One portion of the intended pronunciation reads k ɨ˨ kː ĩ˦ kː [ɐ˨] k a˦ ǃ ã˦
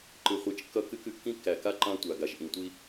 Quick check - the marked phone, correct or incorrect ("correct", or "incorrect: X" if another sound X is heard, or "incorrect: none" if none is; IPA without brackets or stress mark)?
incorrect: æ˨